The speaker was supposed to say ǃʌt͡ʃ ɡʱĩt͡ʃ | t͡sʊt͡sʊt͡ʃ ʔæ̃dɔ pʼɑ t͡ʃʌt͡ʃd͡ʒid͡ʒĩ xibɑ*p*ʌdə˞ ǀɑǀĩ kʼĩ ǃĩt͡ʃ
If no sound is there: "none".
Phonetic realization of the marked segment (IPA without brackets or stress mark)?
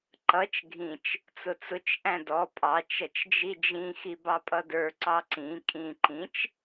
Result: pʼ